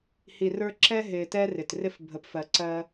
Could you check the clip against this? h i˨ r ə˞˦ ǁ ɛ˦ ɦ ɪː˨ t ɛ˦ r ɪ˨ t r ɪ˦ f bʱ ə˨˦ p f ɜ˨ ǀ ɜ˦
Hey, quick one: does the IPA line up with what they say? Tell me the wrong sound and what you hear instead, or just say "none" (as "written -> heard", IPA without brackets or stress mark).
none